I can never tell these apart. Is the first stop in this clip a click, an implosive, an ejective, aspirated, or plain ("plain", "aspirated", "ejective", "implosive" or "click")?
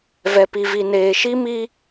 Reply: plain